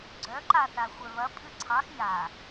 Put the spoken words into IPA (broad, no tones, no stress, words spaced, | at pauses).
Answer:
ɡ͡ǀœǃaθa xʷœβɐ pʼɨǀʰɑx ja